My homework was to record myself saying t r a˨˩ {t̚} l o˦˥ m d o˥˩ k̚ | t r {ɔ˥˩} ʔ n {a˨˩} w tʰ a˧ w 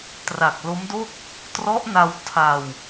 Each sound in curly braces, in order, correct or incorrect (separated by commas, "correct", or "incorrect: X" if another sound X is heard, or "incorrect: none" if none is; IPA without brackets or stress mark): incorrect: k̚, incorrect: ɔ˦˥, incorrect: a˧